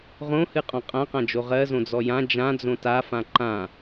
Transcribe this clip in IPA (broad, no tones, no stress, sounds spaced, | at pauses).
ʁ õ h ɨ qʼ ɔ̃ qʼ ã q ã d͡ʒ o ʁ ɜ z õ d͡z ɔ j ã d͡ʒ ã d͡z õ t a f ã ǃ ã